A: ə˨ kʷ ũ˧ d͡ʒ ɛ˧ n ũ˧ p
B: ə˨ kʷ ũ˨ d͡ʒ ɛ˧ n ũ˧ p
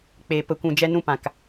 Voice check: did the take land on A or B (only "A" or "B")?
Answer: B